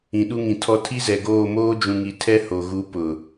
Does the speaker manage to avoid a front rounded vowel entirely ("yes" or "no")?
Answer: yes